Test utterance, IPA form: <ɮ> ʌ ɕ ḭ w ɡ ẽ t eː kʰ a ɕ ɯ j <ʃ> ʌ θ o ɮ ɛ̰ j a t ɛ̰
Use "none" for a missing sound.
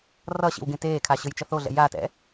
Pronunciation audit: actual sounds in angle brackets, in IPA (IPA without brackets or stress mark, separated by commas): r, t͡ʃ